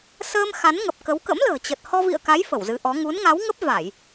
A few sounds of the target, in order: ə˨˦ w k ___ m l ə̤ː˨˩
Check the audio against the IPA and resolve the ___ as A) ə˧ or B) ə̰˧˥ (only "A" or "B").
B